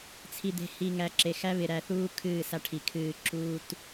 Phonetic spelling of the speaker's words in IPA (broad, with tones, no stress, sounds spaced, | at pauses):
t͡sʰ i˨ d̪ e̤˨ h i˨ ŋ æ˨˦ ǁ e˨ x æ˦ β ɪ˨ ɾ æ˨ θ uː˦ kʰ ɨː˦˨ s a˦ ʈʰ i˨ kʰ ɨː˦˨ ǁ uː˦ t